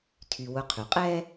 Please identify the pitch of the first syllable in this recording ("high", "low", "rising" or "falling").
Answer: low